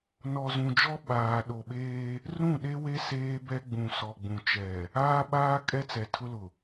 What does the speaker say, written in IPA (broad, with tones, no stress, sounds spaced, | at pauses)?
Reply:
n ɔ˨ z ũ˨ d͡ʒ ɔ˦ ɓ aː˨ ɗ o˨ ɓ eː˦ | r ũ˦˨ ɗ e˦ w e˦ s eː˦ b ɛ˦ ɡ͡b ũ˨ s ɔ˨ ɡ͡b ũ˨ t͡ʃ ɛ˨ | aː˦ ɓ aː˦ kʼ ɛ˦ t͡s ɛ˨ tʰ ʊ˦ l ʊ˨